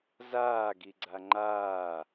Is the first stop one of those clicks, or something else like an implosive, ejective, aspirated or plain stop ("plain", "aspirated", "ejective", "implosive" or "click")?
plain